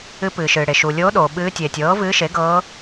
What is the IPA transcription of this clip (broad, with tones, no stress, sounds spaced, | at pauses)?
ɨ˧˥ p ɨː˩ ʃ ɨː˩ ɽ e˩ ʃ u˩ lʲ oː˧˥ ɗ oː˩ ɓ ɨː˧˥ tʲ eː˩ tʲ ɤː˩˥ v ɨː˧˥ ʃ e˩˥ ɡ ɤː˧˥